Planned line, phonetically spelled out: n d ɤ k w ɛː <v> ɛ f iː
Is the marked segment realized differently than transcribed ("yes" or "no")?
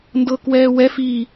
yes